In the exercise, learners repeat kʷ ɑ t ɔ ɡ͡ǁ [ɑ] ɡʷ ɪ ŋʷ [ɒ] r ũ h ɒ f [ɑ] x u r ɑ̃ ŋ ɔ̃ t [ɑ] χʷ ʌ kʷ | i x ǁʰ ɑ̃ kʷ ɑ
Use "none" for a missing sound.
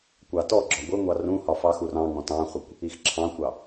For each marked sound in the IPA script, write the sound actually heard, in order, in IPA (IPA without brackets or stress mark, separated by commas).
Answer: ɒ, ɑ, ɑ, ɑ̃